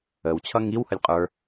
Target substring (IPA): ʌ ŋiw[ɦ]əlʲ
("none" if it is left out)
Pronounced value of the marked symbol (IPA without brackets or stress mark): h